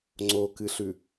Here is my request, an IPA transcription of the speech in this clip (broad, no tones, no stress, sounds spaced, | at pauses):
ŋ͡ǀ o k ɨ ɬ ʉ